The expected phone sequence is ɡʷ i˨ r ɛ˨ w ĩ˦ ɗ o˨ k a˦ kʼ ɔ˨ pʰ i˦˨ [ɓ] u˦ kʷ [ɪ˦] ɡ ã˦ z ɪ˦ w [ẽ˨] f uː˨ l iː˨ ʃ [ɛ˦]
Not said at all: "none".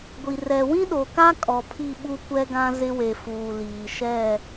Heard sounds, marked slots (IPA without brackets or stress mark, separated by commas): ɓ, ɛ˦, e˨, ɛ˦˨